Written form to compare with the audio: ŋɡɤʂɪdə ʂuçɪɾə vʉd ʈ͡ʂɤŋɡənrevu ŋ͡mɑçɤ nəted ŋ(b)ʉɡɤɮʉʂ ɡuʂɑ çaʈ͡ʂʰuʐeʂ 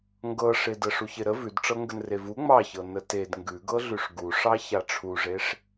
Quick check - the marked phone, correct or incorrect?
incorrect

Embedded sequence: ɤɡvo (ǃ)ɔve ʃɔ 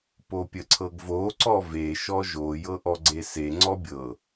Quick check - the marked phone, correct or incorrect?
incorrect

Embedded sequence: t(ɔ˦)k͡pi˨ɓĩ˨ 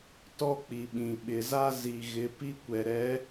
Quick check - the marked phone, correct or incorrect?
correct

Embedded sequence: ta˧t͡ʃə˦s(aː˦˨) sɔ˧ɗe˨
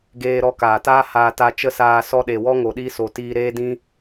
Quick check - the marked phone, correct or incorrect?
incorrect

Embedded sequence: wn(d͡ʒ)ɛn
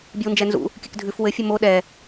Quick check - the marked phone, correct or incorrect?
correct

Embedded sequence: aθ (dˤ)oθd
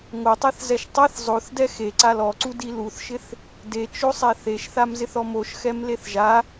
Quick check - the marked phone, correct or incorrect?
incorrect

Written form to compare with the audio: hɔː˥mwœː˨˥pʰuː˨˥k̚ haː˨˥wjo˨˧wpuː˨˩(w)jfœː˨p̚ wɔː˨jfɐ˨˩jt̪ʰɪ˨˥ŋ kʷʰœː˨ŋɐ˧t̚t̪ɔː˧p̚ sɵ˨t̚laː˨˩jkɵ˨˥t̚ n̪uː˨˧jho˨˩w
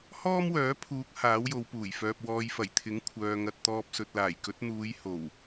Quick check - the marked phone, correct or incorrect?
incorrect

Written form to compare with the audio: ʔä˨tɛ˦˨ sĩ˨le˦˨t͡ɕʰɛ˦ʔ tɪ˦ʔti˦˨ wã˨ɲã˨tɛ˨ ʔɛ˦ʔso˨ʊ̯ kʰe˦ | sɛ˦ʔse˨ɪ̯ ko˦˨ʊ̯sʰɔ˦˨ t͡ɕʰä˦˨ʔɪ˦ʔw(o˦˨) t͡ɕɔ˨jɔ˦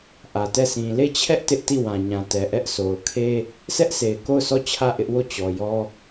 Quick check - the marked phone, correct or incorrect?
correct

